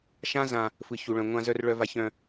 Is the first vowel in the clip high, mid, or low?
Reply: low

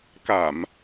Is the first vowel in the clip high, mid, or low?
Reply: low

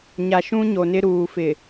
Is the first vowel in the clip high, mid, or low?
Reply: low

